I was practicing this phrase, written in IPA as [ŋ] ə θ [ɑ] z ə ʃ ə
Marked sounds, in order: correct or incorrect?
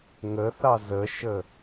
correct, correct

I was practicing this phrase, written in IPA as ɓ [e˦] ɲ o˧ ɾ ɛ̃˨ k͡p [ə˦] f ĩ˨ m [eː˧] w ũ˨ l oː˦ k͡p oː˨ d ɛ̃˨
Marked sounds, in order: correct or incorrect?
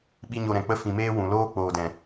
incorrect: i˦, correct, correct

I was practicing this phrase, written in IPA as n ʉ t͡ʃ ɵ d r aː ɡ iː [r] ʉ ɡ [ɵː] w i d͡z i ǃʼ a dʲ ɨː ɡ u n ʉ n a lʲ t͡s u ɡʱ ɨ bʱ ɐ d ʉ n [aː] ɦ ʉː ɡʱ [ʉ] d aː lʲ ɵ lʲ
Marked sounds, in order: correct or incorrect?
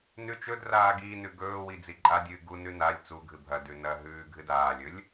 incorrect: n, correct, incorrect: ɐː, incorrect: ɨ

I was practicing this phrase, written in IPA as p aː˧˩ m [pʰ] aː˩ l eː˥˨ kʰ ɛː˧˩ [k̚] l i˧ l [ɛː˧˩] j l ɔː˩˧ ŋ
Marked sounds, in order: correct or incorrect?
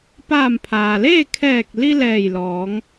correct, correct, correct

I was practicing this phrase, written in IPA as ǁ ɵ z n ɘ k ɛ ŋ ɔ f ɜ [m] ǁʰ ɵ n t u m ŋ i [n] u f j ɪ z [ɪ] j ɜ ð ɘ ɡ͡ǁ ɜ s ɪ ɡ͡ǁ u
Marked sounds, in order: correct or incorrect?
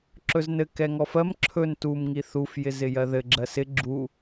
correct, incorrect: θ, correct

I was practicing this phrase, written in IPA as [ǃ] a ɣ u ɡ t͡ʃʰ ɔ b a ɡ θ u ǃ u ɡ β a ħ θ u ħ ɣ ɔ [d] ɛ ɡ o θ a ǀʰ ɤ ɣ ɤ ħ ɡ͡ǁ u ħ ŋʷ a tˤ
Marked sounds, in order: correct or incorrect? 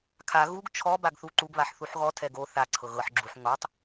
incorrect: kʰ, incorrect: tʰ

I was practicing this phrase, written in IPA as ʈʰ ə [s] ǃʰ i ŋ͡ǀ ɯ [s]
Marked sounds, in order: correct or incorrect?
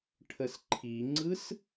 correct, correct

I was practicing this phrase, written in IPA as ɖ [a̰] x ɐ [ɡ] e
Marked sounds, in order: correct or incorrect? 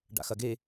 correct, correct

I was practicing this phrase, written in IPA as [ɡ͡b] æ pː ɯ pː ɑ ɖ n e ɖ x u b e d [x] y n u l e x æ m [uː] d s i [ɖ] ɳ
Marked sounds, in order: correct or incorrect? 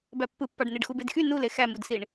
incorrect: b, correct, incorrect: u, incorrect: none

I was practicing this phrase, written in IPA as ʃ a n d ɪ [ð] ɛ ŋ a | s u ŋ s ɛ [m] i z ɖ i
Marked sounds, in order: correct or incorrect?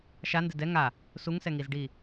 incorrect: d, incorrect: ŋ

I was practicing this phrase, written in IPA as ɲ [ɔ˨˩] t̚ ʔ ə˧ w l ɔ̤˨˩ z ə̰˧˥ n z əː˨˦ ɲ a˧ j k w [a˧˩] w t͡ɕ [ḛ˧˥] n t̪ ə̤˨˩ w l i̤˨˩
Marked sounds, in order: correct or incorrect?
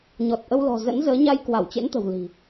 correct, correct, correct

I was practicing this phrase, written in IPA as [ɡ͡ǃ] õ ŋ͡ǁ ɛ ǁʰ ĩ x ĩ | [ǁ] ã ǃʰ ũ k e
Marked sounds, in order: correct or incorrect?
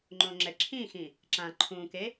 incorrect: ŋ͡ǃ, correct

